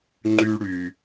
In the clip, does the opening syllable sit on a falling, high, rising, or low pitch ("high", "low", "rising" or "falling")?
high